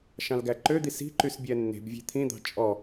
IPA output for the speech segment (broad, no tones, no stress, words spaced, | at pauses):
ʃɑ̃lɡæǃød̪i si̤ǃys bʲɛnːe̤bvʲe̤ t̪ʰĩd̪ɑ̤ t͡ʃʼɔ